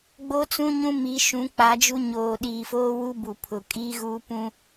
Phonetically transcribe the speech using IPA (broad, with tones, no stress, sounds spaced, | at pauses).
ɡ͡b o˦ t͡s ũ˦ ɲ ũ˦ m i˨˦ ʃ ũ˨˦ k͡p a˨˦ d͡ʒ u˦ ɲ oː˨ ɗ iː˨ f oː˦ w u˦ b u˨ pʰ ʊ˨ kʼ iː˦ ɣ uː˦ p ũ˦